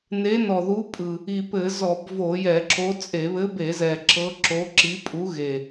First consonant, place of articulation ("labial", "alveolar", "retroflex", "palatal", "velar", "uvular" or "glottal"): alveolar